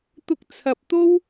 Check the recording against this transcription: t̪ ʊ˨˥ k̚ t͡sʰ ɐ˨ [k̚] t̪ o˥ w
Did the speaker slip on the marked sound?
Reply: yes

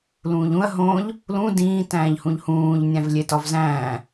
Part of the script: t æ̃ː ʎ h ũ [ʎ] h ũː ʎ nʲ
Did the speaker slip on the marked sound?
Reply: no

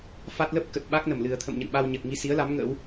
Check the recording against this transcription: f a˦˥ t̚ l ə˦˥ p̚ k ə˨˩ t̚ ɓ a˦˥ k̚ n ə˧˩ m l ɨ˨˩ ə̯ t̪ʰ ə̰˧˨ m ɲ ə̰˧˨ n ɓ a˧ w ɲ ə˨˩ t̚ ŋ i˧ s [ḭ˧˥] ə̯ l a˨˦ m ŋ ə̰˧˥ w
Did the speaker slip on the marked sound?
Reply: yes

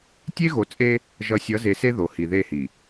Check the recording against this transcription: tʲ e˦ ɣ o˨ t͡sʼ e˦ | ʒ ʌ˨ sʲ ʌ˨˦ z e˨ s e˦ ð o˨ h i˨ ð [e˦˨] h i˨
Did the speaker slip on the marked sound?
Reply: no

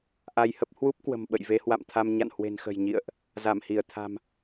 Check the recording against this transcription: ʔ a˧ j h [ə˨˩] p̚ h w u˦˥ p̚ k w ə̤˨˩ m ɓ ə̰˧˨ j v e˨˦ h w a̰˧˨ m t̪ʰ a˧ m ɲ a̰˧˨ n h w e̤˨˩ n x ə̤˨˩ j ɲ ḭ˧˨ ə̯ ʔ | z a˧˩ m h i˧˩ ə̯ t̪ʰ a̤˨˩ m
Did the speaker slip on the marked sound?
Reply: yes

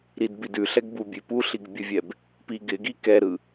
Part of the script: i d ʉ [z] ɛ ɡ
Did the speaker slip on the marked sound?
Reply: yes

